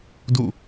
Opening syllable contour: falling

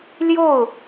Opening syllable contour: falling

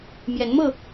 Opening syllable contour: rising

